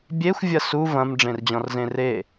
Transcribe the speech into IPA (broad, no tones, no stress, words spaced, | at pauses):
bʲexʷ vʲɐsu vɐ̃m ɖ͡ʐẽrd͡ʑɔ̃rzẽre